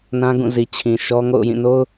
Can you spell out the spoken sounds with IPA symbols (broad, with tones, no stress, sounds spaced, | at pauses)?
n ã˦ ɡ ũ˦˨ z i˨ t͡ɕʰ ĩ˨ ʃ ɔ˦ ŋ o̰˦˨ ʊ̯ j ĩ˦˨ n o˦ ʊ̯